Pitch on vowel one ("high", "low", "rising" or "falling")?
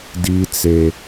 high